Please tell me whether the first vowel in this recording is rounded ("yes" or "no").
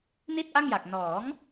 no